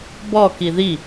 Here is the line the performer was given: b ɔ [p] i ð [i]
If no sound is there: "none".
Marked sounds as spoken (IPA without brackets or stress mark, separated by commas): k, i